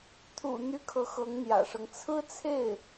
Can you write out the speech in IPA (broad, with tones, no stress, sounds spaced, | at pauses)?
t̪ʰ ṵ˨˩ n̪ y˧˥ kʰ ɤ˧˥ x ɤ˧˥ ŋ n̪ j ä̰˨˩ ʂ ɤ˦ ŋ t͡sʰ ɹ̩˥ t͡sʰ e˥˩ ɪ̯